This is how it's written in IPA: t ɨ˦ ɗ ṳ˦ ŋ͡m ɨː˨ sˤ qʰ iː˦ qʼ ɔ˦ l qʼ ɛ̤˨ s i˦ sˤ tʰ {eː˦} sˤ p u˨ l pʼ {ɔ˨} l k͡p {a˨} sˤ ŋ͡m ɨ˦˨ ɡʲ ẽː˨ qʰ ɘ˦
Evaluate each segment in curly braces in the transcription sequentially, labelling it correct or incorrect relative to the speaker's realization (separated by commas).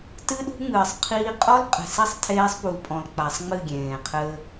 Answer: correct, incorrect, correct